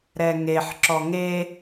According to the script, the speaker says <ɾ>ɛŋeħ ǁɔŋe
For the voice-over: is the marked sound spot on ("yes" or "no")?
yes